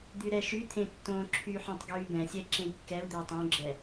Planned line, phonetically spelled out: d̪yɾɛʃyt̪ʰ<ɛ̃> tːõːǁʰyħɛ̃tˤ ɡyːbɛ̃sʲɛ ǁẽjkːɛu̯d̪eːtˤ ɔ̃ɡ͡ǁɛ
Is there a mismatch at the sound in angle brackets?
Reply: yes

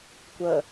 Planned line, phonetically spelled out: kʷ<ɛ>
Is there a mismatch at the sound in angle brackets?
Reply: yes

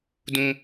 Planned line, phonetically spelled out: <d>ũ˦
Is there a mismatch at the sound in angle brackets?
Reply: no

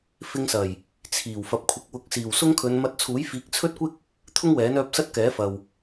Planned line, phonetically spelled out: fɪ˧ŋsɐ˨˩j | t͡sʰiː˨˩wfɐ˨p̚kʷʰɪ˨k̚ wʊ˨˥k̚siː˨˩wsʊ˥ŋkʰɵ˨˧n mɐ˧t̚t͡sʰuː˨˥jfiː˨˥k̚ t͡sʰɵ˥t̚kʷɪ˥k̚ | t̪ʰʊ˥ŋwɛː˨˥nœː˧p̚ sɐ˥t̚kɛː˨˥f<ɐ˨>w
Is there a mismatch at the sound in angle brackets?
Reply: no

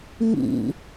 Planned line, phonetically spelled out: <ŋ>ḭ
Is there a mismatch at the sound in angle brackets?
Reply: no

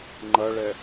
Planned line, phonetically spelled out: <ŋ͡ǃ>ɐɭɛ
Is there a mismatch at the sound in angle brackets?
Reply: no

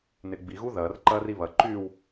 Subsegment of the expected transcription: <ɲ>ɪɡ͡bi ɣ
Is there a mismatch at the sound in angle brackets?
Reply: yes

